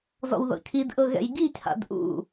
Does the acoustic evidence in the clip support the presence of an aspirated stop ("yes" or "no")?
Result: yes